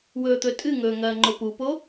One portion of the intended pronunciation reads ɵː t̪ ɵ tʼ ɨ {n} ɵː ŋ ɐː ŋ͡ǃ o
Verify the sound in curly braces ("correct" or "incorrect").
incorrect